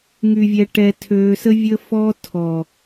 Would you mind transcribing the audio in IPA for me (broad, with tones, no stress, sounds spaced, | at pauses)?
ŋ y˨ vʲ ɛ˨ ʈ ɛ˨ tʰ øː˨ s ə˦ vʲ ə˦ f ɔ˦ tʰ ɔ˨